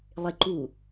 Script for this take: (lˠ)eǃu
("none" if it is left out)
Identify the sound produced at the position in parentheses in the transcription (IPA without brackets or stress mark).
lˠ